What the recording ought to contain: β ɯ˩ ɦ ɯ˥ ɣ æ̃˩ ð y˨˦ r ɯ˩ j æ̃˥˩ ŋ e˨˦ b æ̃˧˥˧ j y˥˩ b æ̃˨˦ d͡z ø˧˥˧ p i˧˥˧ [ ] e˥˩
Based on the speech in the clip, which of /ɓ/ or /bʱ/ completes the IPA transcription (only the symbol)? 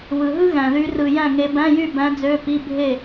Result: bʱ